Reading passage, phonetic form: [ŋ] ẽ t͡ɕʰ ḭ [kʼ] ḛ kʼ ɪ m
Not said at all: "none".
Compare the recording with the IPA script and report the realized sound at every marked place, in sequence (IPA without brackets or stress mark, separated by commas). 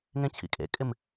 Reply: ŋ, kʼ